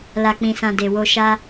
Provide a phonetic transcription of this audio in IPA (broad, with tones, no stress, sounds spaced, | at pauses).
l a˨ k͡p ĩ˨ s ã˨ d e˨ w o˨ ʃ a˧